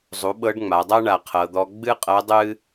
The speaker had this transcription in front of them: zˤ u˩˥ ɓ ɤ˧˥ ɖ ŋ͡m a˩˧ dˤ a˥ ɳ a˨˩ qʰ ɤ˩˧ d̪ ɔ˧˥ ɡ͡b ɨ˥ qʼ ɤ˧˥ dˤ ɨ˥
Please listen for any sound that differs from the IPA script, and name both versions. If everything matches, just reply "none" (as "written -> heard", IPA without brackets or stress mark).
none